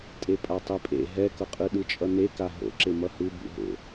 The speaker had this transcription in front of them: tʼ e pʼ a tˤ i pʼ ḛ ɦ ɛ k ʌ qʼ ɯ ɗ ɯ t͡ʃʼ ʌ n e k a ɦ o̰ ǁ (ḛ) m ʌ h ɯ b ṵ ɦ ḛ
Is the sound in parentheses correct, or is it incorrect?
incorrect